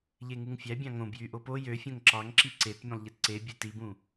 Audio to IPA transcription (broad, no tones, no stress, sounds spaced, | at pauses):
ʎ e ŋ u ŋ fʲ æ bʲ ɑ̃ ŋ õ b j y ʔ o p o j ø fʲ õ ŋ ǁ ɑ ŋ ǁ i ǀ e t mʲ ũ lˠ ʎ e t ǀ e bʲ e t i b ũ